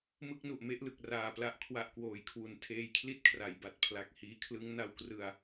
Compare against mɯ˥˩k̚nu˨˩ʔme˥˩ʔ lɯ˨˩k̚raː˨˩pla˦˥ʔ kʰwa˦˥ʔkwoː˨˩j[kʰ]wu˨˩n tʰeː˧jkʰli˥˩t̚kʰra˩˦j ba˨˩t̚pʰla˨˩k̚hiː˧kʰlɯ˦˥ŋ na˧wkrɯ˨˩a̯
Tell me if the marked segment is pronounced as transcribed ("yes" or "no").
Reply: yes